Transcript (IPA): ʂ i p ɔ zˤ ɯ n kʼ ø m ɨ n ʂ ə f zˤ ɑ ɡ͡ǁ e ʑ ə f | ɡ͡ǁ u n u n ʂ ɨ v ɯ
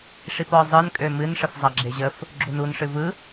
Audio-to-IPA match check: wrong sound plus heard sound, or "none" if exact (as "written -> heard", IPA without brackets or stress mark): none